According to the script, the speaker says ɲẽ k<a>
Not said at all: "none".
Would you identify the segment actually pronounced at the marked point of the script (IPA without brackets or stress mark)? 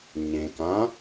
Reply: ã